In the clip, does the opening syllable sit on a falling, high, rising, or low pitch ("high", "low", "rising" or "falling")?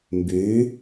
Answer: rising